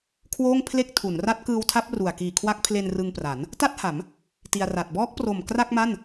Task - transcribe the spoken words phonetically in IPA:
kʰ w oː˥˩ ŋ pʰ l e˥˩ k̚ tʰ u˩˦ n r a˦˥ t̚ k ɯː˧ w tʰ a˦˥ p̚ r u˨˩ a̯ k iː˨˩ kʰ w a˦˥ k̚ pʰ l e˧ n r ɯ˧ ŋ p r a˩˦ n | t a˥˩ t̚ h a˩˦ m | t i˧ a̯ r a˨˩ t̚ b ɔː˦˥ k̚ p r o˨˩ m k r a˥˩ k̚ m a˥˩ n

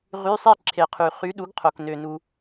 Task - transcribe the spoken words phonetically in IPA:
ʁ y˧˥˧ sˤ i˥˨ ǁʰ e˨˩˦ qʰ y˨ χ y˨˥ ɗ u˨˥ ɡ qʰ o˨ k n ø˨ n u˨

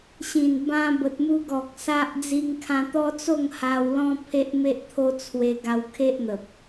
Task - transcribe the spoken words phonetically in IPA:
ɕ ĩ˨˩ n b ã˦ b ə˨ t̚ m u˧ ɡ ɔ˨ k̚ s a˦ ʔ d͡z i˧ ŋ kʰ ã˧ t̪ ɔ˦ t͡s o˥˧ ŋ h a˧ w l ɔ̃˦ pʰ e˦ ʔ m e˦ ʔ t̪ʰ o˦ t͡sʰ w e˧ ɡ a˧ w kʰ e˦ ʔ n̪ ə˨ p̚

